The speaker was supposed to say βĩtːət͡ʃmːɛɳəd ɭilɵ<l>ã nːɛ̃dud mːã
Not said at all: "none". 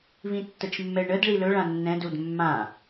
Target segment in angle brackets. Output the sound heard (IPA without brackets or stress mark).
ɭ